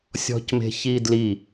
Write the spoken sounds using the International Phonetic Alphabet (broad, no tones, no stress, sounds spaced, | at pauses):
sʲ ɔ̤ c m e̤ ç i d l i